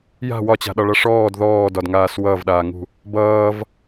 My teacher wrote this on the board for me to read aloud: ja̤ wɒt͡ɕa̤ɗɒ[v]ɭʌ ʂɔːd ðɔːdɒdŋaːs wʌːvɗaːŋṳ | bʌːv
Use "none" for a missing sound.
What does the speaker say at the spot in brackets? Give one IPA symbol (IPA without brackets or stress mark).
none